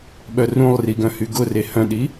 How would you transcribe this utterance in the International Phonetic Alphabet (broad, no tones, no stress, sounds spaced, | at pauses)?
ɓ œ r ũ lˠ r i ɡ œ̃ h y ɡ ʊ r e h œ̃ ɗ i